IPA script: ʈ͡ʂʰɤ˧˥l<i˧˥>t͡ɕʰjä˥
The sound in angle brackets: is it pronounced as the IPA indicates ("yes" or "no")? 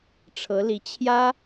yes